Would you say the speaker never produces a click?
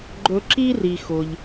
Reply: no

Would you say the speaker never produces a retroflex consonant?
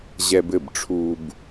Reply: no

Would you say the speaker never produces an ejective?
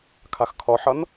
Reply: yes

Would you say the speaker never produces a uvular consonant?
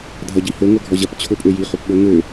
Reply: no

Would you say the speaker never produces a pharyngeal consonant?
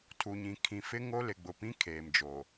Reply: yes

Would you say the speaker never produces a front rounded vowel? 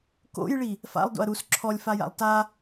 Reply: yes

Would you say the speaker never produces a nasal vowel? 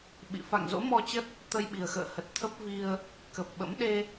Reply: yes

